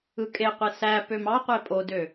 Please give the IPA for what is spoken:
ɯ kʼ e qʷ e s æ p ø m ɑ qʷ e pʼ o d ø

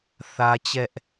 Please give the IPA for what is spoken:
θ ä˦ t͡ɕ ɛ˦ ʔ

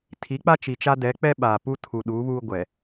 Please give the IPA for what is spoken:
tʰ i˨˦ k͡p a˦ t͡ʃ i˨ t͡ʃ a˦ d ɛ˨˦ k͡p ɛ˦ ɓ aː˨ p u˦ tʰ u˨ ɗ uː˨˦ β uː˦ ɡʷ ɛ˨

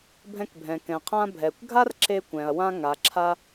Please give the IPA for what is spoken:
bʱ ɛ̃˧ k bʱ ɛ̃˩ k ɛ̃˩ qʰ ã˧ bʱ ɛ˩ kʷ ɡʱ a˥ r ǁ e˧ kʷ ɛ̃˩ ɐ̯ w ã˧ ŋ a˩ ǁʰ a˧

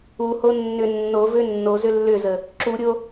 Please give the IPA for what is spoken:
u h o nː ʏ nː o v ʏ nː o z ʏ lː ʏ z ə | ǁ u ɾʲ o

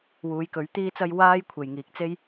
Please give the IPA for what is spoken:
w uː˨˧ j k ɵ˨˥ ɥ t̪ iː˥ t͡s ɐ˥ j w aː˥ j kʷʰ e˨ j ŋ iː˨ k̚ t͡s e˥ j

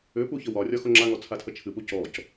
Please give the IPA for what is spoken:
ʏ p u ç ə w ɒ rʲ ɒ x o ŋ͡ǁ a ŋ ɔ t͡sʰ a tʰ ə t͡ʃʰ ɨ p u c ɔ c

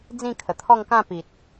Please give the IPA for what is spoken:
d͡z ĩ˥˧ kʰ ə˨˩ t̪ʰ ɔ˥˧ ŋ k ã˥˧ p i˨ t̚

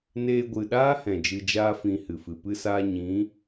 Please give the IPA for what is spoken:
n eː˧ ɡʷ ɨ˨ ɗ aː˦ h ɛ̃˨ d͡ʒ ɨ˧ d͡ʒ aː˦ f ĩ˧ h ɨ˨ f ɨ˨ p ɨ˦ s aː˦ ɲ ĩ˨˦

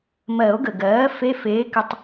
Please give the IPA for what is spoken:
m ɜ˨˩˦ o̯ ɡ ə˩ ɡ ɜː˩˥ f e˧˥˧ f eː˩˥ k ʏ˨˩˦ tˤ

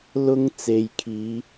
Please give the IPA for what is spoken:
l ʊ˥ ŋ t͡s e˨ j kʰ iː˨˧

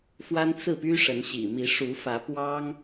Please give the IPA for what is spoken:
f w a˦ n t͡s ɹ̩˥˨ p y˦ ʂ ə˨˦ n ɕ ḭ˨˩ m i˨˦ ʂ u˨˦ f ä˨˦ p w ɑ˦ ŋ

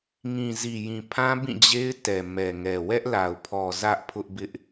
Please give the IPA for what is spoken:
ŋ ĩ˨ z i˨ j ĩ˨ pʰ ã˦ b ĩ˦˨ d͡ʑ e˦ ɪ̯ t ɛ˨ m ɛ˨ ŋ ɛ˨ w ɛ˦ ʔ l a˨ ʊ̯ pʰ ɔ˨ z ä˦ ʔ pʰ ʊ˦ ʔ b ɪ˦ ʔ

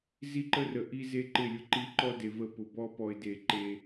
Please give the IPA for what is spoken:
z i˦ ǃ ə˦ r ə˨ ʔ i˦ z e˦ ǃ ɪ˦˨ lʲ ʊ˦ ǃ i˦ ǃ ɔ˦ d e˨ v ə˦˨ p ʊ˨ b ɔ˦ p ɔ˨ ɪ̯ d e˨ ǃ e˦

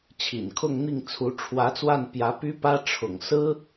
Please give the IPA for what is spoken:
t͡ɕʰ ḭ˨˩ n kʰ ʊ˥˧ ŋ n̪ i˥˩ ŋ t͡sʰ u˧˥ ʈ͡ʂʰ w ä˧˥ t͡s w a˥˩ n p j ä˧˥ p y˥ p ä˥ ʈ͡ʂʰ ʊ̰˨˩ ŋ s ɹ̩˥

